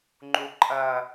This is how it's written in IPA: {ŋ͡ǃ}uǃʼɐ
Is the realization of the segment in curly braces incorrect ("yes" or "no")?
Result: no